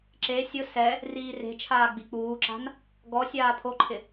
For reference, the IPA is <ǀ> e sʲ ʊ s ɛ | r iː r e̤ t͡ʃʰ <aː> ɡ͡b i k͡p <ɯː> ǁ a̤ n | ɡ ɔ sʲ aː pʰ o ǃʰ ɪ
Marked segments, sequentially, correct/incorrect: incorrect: ǁ, correct, incorrect: uː

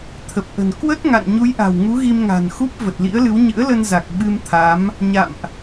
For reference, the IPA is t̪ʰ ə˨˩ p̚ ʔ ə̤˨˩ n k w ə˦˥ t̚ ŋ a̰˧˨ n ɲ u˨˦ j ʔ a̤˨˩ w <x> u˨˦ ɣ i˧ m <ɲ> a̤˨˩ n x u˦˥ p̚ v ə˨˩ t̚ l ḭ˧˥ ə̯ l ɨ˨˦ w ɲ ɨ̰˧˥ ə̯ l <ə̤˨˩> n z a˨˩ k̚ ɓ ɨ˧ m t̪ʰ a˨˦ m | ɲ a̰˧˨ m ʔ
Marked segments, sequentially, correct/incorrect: incorrect: ŋ, incorrect: ŋ, incorrect: ə˧

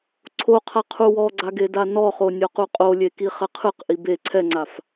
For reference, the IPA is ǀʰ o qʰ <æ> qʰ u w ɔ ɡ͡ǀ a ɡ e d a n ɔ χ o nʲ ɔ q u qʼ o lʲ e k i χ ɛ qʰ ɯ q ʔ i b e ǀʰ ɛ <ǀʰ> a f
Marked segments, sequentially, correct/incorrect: incorrect: a, incorrect: ŋ͡ǀ

